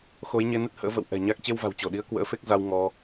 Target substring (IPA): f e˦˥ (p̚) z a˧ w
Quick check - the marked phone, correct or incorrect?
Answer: incorrect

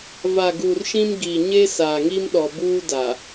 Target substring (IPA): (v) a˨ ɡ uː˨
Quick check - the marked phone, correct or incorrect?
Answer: correct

